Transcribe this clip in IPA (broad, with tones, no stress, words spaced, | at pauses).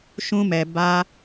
ʃũ˦mɛ˧ ba˦